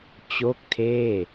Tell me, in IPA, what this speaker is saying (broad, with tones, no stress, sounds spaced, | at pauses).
t͡ɕ o˥˩ k̚ tʰ eː˥˩